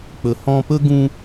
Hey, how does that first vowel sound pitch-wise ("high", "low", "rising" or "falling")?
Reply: low